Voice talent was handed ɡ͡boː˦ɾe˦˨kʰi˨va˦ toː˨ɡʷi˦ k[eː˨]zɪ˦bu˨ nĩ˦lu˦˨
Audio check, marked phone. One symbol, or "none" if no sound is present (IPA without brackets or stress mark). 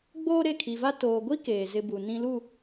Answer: eː˨